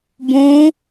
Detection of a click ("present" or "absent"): absent